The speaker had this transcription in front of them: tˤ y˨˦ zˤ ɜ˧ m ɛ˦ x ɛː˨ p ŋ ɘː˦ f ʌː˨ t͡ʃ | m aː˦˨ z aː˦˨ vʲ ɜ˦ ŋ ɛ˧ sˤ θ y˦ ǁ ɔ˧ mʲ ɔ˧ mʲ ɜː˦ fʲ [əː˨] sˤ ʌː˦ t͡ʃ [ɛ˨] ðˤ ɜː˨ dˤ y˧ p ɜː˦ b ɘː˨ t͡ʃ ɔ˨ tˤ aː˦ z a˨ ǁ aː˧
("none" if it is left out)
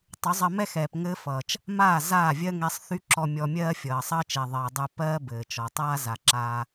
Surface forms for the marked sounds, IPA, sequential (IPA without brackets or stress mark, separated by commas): ʌː˨, ɛ˨